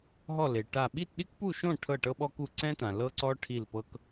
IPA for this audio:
ɦ ɔ˥˨ l e˨ ʈ a˥˨ ɓ i˥˨ t ɗ i˥ k p u˥˨ ʃ õ˥˨ ʈʰ ɤ˥˨ ʈ ɤ˥ ɓ ɔ˥ k u˥˨ ǀ ɛ̃˥ t ã˨ l ɤ˥ ǀ ɔ˥ ʈʰ i˥˨ l p ɤ˥ k

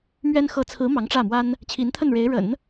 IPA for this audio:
m ɥ ɛ˥ n x ɤ˧˥ t͡sʰ ɹ̩˧˥ m ɑ˧˥ ŋ ʈ͡ʂ ä˥˩ m w a˥ n | t͡ɕʰ i˧˥ n t̪ʰ ə˥˩ n ɻ e˧˥ ɪ̯ ɻ ə̰˨˩˦ n

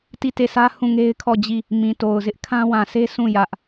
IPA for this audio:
t i˦˨ t e˦˨ s ä˦ h ũ˦˨ ŋ e˦ ɪ̯ kʰ ɔ˦˨ d͡ʑ i˦˨ | m ĩ˨ t o˨ ʊ̯ z ɪ˦ ʔ kʰ ã˦ w ã˨ s e˦ s ũ˦˨ j ä˦ ʔ

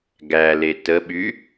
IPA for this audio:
ɡ æ l e t ə ɓ y

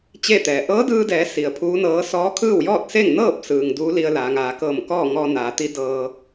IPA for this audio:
t͡ɕ e˥˨ t̪ ɛː˩ ʔ ɤː˧˥ d ɯː˧ d ɛː˩˧ s i˩ ə̯ pʰ uː˧˥ n ɤː˧˥ s ɔː˧˥ kʰ ɯː˥˨ w j ɔː˥˨ t̚ s e˥˨ ŋ n ɤː˥˨ p̚ s ɯː˩ ŋ d uː˧˥ l i˧ ə̯ l aː˩˧ ŋ aː˩˧ k ɤː˧˩ m k ɔː˥˨ ŋ ɔː˧ n aː˩˧ t̪ i˧˥ d ɤː˧

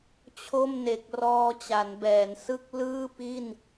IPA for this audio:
t͡ɕʰ o˥˩ m n e˨˩ k̚ r ɔː˧ t͡ɕ a˩˦ n b ɛː˩˦ n s ɯ˥˩ k̚ l ɯː˥˩ p i˥˩ n

